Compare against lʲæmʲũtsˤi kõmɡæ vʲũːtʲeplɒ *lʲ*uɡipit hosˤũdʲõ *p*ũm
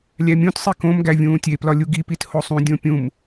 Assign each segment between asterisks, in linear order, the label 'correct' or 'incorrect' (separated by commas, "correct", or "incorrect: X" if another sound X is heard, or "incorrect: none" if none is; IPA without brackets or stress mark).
correct, incorrect: pʲ